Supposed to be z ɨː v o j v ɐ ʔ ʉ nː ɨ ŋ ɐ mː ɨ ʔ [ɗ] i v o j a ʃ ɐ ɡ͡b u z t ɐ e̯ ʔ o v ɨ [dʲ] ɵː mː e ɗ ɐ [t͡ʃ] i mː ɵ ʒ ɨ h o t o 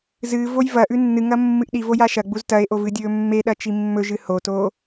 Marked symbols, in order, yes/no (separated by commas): yes, yes, yes